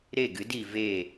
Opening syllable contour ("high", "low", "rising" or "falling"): falling